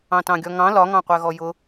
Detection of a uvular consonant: present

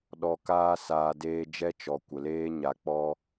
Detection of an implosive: present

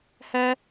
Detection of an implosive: absent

